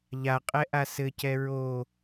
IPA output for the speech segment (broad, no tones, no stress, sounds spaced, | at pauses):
ʎ a qʼ ɛ ʔ a s ɘ c ɛ ɹ o